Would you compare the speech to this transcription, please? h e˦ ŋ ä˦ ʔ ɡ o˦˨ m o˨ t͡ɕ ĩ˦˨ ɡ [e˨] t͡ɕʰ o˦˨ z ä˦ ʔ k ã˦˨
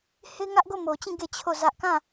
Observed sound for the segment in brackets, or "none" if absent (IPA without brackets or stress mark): e˦˨